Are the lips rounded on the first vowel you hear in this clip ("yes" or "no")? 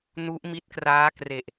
yes